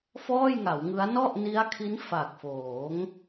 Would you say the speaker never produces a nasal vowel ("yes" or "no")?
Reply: yes